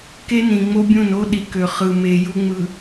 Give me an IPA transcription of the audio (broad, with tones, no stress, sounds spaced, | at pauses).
k e˦ n ĩ˨ ŋ͡m o˦ bʲ ũ˦˨ n o˦ ɗ i˨ k ø˨ χ ɯ˨ m e˨ j u˦ ŋ͡m ɯ˨